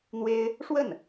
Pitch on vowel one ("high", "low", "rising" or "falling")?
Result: high